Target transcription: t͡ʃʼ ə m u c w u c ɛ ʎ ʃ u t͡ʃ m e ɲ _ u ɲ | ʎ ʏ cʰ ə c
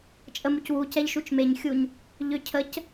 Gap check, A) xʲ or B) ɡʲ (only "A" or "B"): A